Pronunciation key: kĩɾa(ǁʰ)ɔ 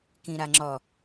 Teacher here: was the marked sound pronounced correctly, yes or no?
no